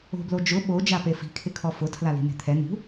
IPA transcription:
o̤ b l o d͡ʒ ʊ ɓ o d͡ʒ a p e f i̤ kʰ ɪ kʰ ɔ f ʊ tʰ l a l i̤ n̪ e̤ t̪ʰ ɛ n̪ ṳ

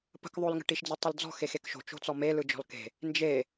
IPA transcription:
p ə̤ k ðˤ o l ŋ ə̤ ʈ i ʃ d͡z ə tˤ o l d͡z ɔ̤ x e x e k ʃ o̤ t͡ʃ o̤ t͡s ɔ m e l ɯ d͡ʒ ɔ̤ l k e̤ | n d͡ʒ e

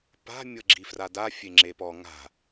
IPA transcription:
p a̤ mʲ ɤ ɡ͡ǁ i f r a d a fʲ e ŋ͡ǁ e p ɔ ŋ a̤

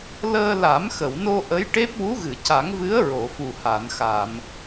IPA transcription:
l əː˧ l a˨˩˦ m x ə˨˩˨ w n o˧ ʔ ə˧˥ j ʈ e˦˥ p̚ w u˧˥ ɣ ɨ˨˩˨ c a˨˩˦ ŋ v ɨ˧˥ ə̯ ɹ o˨˩˨ f u˨˩ h a˨˩˨ n x a˨˩˨ m

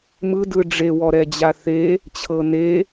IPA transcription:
m ɯ d ɯ ɖ͡ʐ e w ɔ ɾ ɛ d͡ʑ a θ e | t͡ɕʰ ɤ n e

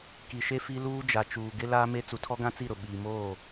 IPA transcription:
k i˨ ʃ e˦ f i˦ l uː˦ d͡ʒ a˨ t͡ʃ uː˨ ɡ ɪ˦ l aː˦ m e˦ t͡s u˨ tʰ ɔ˦ ɡ ã˦ t͡s i˦˨ ɾ ʊ˨ ɓ iː˨ m oː˦˨

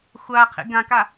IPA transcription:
xʷ a qʰ ḭ ɡ ã k a

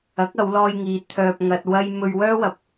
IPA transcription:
ɐ˨˥ k̚ ɐ˨˧ w l ɔː˧ j ŋ iː˨˧ t̪ʰ œː˧ p̚ ŋ ɐ˧ t̚ w ɐ˥ j m ɵ˧ ɥ w œː˥ w ɐ˨˥ p̚

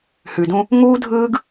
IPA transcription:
h ʉ˨ d ũ˦ | ŋ uː˦ dʱ ɯː˦ ɡ

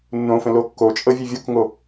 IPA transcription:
nː õ f ə̃ l o kː o t͡ʃʼ ɤ vʲ ɨ vʲ o k ŋ o

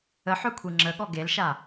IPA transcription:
ə ħ œ kʷʰ i ŋ͡ǁ ə ɠ ɔ ɡ e l ʃ a

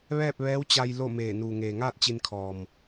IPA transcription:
ʋ ɛː˥˨ p̚ ʋ ɛː˧˥ w t͡ɕ a˧ j l o˥˨ m eː˧˩ n uː˩ ŋ eː˩ ŋ aː˥˨ t̚ t͡ɕ i˧ n kʰ ɔː˩ m

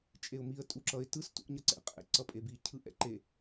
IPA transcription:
t͡ʃʼ e ʊ̯ m i ə̯ tʼ u ǁ ʌ ɪ̯ t ɯ s t ṵ ʔ ɲ ʌ ǀ ɛ̰ qʼ ɛ̰ ǀ ʌ pʼ e b i cʰ ɯ ʔ ɛ̰ ǃ e

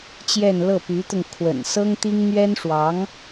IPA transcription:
t͡ɕ j ɛ˥˧ n l ɤ˥˩ p y˧˥ t̪ ʊ˧ ŋ kʰ w ə̰˨˩ n s ɤ˥ ŋ t̪ i˥ ŋ n̪ ɥ ɛ˥ n ʂ w ɑ˧˥ ŋ

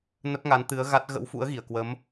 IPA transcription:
n ə˦˥ p̚ ŋ a˨˦ n t̪ ɨ˨˦ ə̯ ɣ a˦˥ t̚ ɣ ə̰˧˥ w f ṵ˧˥ ə̯ ɣ i˧˩ ə̯ k w ə˨˦ m

